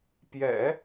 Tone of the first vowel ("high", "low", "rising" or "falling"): low